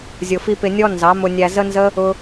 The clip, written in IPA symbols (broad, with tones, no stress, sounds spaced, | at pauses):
zʲ ʊ˧ f i˦ p ɪ˧ nʲ ɔ˦ n z ɑ˨˦ m ʊ˧ nʲ æ˧ z ə˦ n z ə˦ | ʊ˦